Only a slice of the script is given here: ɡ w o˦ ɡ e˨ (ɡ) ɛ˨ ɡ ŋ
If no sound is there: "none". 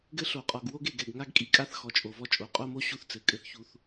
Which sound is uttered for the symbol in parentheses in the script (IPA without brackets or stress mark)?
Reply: ɡ